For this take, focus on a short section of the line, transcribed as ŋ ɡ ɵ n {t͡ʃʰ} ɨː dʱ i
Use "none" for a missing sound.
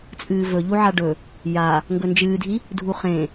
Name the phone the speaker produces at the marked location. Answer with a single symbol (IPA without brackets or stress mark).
d͡ʒ